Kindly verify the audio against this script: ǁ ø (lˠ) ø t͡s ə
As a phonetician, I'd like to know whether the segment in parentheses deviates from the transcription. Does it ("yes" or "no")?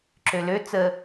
yes